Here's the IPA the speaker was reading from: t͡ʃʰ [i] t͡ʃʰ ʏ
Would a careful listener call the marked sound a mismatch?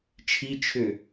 no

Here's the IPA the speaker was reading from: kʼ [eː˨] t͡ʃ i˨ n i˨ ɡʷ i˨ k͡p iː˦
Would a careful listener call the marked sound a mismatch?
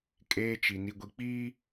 yes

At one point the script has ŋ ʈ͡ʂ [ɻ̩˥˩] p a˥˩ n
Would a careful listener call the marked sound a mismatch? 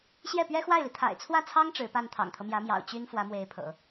yes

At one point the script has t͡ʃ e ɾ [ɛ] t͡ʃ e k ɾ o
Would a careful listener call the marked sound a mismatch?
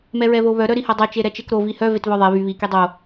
no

